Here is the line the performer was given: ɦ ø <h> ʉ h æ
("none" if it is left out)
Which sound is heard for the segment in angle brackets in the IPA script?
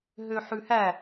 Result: ħ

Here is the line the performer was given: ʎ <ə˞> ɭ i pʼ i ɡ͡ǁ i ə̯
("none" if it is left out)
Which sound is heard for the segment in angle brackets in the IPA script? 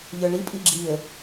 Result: ə˞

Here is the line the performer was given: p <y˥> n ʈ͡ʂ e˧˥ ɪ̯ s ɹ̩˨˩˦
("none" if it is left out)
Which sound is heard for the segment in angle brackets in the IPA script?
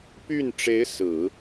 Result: y˥˩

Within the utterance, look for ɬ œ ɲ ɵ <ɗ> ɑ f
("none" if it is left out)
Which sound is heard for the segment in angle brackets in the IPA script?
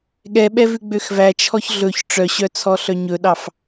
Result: ɗ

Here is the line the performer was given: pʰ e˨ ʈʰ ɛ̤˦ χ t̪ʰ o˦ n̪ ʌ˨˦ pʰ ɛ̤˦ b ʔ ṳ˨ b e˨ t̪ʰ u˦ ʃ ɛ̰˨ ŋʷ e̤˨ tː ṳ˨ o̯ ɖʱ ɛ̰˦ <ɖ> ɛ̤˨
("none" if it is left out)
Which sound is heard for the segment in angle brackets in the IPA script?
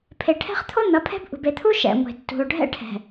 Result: ʈʰ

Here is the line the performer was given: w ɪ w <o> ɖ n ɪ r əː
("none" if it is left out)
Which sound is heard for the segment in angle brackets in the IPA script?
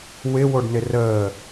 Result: o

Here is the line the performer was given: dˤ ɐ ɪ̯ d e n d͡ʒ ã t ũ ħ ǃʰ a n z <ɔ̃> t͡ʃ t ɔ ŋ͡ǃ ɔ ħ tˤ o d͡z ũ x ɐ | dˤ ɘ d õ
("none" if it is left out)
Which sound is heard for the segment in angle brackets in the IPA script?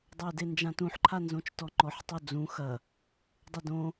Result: õ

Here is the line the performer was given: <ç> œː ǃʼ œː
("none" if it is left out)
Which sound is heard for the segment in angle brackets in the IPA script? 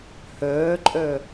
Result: h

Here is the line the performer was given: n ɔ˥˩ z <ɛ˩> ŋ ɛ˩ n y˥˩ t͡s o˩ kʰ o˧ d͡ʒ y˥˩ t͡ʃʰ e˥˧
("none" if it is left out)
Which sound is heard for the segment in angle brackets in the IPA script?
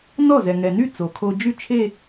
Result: ɛ˩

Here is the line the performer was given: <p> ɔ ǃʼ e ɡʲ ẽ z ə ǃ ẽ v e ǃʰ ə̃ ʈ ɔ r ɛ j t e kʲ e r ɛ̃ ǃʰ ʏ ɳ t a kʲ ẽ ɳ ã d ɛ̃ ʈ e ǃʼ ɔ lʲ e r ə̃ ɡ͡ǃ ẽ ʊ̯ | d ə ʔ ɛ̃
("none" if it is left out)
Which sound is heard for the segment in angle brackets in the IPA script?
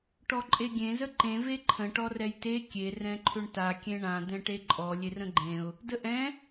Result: ʈ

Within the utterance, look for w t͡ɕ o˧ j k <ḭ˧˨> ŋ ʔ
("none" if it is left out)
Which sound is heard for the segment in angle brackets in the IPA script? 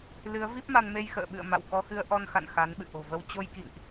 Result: ḭ˧˨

